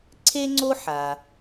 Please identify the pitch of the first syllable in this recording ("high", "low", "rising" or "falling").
high